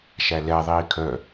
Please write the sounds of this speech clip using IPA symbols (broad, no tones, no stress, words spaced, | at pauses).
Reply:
ʃælɛ ðˤiːkʰœ